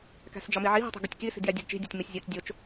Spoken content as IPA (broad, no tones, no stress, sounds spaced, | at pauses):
k æ̤ s d͡ʒ ɒ m i ʕ i ɦ i̤ tˤ e̤ ɡ u tʲ k i s i̤ d j æ dʲ ṳ d t͡ʃ i̤ dʲ o tʲ m i sʲ zʲ o t͡s dʲ o t͡ʃ